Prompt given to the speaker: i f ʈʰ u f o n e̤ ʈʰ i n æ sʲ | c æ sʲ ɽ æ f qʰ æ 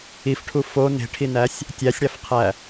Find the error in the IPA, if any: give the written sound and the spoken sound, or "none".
c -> tʲ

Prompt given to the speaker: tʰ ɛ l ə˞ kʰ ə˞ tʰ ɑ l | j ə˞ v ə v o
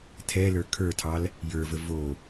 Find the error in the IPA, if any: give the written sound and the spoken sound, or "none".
none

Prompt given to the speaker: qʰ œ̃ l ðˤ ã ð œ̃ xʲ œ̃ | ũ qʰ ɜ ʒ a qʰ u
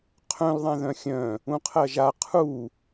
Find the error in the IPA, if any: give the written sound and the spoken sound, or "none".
none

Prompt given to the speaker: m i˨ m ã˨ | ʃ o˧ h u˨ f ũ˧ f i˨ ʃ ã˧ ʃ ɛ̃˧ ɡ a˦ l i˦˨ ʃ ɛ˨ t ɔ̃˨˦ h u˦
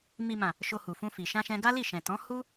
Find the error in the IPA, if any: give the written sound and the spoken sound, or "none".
ɛ˨ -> ɛ̃˨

